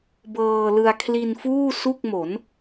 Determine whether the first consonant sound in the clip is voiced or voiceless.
voiced